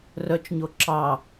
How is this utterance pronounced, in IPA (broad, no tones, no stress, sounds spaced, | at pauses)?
r œ t͡ʃ ɲ o ǁ ɑ